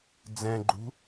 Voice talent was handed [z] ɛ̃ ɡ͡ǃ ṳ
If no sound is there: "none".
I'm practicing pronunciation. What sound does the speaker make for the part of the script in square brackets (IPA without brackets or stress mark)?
d͡z